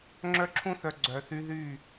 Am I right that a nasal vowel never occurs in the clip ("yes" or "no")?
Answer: no